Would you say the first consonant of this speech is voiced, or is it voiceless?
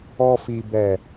voiceless